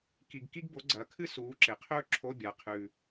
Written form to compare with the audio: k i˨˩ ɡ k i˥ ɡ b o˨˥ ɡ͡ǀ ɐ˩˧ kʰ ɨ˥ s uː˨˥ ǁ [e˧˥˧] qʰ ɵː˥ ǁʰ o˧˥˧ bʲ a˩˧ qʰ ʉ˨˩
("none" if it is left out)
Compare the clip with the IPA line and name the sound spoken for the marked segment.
e˩˧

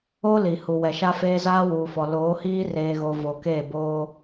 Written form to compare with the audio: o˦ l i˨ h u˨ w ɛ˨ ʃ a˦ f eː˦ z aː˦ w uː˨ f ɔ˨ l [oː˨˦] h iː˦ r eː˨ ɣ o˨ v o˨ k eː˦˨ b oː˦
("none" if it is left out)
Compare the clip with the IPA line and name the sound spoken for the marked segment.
oː˨˦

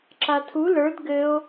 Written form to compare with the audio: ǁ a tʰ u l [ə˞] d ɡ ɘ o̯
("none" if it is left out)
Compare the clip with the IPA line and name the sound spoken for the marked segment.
ə˞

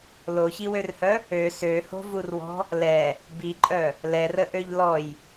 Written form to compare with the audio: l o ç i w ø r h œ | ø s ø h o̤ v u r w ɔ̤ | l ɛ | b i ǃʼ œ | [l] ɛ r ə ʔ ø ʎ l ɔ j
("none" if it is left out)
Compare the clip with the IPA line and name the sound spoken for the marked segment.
l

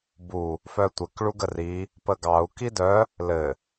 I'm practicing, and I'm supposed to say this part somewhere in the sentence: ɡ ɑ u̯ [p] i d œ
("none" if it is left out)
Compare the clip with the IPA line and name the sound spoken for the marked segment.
k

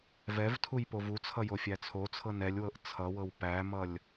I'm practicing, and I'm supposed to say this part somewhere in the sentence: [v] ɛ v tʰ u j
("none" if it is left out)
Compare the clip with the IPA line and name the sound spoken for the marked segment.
v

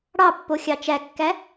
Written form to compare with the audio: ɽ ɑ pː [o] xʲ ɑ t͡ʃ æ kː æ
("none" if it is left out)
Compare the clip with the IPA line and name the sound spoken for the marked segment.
o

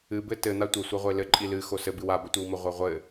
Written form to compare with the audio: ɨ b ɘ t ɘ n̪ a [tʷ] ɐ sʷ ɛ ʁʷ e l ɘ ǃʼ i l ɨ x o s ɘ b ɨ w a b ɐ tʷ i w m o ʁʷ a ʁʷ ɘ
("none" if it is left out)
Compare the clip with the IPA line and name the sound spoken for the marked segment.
tʷ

